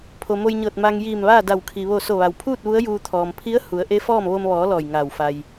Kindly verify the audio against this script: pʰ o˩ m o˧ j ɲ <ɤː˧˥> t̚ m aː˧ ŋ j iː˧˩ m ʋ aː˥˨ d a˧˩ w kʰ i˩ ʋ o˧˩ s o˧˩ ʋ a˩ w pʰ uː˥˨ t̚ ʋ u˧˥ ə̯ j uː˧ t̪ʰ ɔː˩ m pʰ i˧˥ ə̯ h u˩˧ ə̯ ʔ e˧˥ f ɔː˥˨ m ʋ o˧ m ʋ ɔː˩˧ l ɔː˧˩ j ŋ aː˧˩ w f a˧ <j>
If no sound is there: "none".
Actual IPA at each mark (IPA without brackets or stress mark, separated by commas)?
ɤː˧˩, j